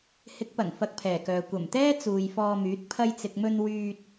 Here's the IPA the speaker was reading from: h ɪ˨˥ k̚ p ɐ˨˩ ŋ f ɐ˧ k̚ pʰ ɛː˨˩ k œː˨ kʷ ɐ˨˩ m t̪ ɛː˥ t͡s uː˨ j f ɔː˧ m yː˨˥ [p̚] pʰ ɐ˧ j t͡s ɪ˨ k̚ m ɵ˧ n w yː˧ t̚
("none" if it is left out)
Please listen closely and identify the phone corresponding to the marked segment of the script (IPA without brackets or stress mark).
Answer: t̚